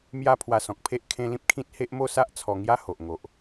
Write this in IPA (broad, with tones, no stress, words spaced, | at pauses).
mja˥˧ pʰwa˧sɔ̃˨k̚pʰe˦ʔ kʰẽ˧ lĩ˦p̚kʰĩ˦t̚ he˦ʔ mo˥˧sa˦ʔ t͡sʰɔ˧ ŋja˦ho˨ʔ ŋo˨ʔ